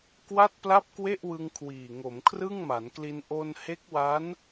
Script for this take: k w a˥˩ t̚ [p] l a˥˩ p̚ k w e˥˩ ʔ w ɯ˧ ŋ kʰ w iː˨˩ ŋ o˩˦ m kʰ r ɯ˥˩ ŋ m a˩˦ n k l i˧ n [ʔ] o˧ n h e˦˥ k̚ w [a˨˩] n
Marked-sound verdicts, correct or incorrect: correct, correct, incorrect: a˦˥

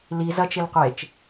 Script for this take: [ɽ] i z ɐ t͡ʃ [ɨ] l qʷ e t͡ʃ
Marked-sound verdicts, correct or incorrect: incorrect: l, incorrect: e

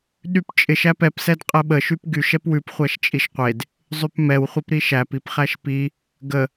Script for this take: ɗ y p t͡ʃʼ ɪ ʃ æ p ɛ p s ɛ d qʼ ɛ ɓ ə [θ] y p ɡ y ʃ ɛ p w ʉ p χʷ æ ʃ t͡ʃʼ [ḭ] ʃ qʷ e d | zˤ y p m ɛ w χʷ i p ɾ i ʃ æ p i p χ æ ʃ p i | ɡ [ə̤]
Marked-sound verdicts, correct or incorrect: incorrect: ʃ, incorrect: i, incorrect: ə

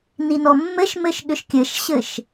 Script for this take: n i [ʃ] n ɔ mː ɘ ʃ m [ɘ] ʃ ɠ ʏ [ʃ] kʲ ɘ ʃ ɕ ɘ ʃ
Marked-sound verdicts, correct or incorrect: incorrect: none, correct, correct

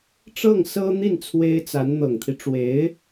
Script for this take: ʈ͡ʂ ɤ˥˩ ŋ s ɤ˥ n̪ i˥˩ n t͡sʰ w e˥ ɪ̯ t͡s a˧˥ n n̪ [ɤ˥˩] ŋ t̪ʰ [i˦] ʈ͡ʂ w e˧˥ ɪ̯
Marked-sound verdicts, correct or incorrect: incorrect: ɤ˨˩, correct

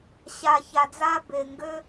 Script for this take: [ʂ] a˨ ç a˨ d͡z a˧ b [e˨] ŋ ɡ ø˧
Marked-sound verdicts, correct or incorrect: incorrect: ɕ, correct

